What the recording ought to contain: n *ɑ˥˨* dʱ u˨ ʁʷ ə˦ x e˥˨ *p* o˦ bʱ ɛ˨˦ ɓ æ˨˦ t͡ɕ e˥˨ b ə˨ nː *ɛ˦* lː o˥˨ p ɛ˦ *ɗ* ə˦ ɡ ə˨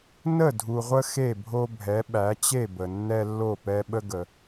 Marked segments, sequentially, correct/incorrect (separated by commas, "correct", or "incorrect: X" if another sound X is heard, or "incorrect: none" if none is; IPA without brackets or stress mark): incorrect: ə˥˨, incorrect: bʱ, correct, incorrect: ɓ